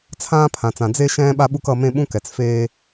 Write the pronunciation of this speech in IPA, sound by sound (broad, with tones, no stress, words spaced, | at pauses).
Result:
t͡sʰãː˦pʰã˨t͡sã˨ d͡ze˦ʃɛ̃ː˦ ɓa˦ɓu˦k ʌ˦ mẽ˦ɓũ˦kɛ˨t͡s feː˦